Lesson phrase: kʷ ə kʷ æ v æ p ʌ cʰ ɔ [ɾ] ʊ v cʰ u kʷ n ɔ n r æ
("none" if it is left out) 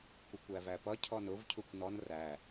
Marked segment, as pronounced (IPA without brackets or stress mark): n